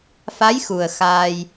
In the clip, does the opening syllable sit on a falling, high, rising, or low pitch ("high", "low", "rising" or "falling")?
rising